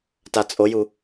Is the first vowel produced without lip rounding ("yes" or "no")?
yes